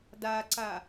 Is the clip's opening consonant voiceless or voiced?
voiced